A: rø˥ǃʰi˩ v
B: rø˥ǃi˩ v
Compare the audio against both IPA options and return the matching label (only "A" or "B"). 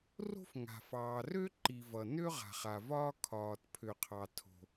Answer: B